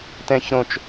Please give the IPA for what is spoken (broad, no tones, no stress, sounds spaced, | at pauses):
t̪ ɛ̃ ç ɾ õ t͡ʃ